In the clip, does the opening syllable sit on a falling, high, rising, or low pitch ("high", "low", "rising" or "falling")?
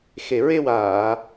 low